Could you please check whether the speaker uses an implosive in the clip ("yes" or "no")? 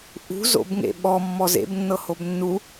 yes